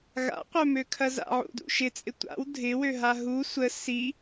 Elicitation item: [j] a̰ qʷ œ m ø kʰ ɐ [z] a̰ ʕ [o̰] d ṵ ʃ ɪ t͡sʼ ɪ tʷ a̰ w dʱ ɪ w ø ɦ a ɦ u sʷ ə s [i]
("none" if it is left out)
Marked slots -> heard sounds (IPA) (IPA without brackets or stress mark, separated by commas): ɣ, z, ṵ, i